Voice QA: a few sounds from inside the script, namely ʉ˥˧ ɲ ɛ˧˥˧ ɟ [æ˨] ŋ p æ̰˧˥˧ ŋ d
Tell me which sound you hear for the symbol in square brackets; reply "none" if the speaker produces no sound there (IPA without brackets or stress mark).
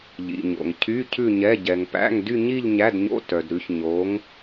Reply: ɛ˨